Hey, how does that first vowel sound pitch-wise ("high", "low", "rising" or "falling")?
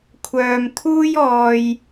low